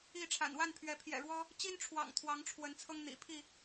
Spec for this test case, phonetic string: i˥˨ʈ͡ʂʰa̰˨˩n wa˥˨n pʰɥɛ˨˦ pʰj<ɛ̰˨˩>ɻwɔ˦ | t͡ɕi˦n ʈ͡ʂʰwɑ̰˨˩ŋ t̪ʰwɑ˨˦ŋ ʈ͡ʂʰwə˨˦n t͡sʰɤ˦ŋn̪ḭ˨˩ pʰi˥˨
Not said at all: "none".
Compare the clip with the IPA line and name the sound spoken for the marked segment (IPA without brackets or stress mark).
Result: ɛ̰˨˩